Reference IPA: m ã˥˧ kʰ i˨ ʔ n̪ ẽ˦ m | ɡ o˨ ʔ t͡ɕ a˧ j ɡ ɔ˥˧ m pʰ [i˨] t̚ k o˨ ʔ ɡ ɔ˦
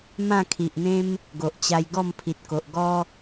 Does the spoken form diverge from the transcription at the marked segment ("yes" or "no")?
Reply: no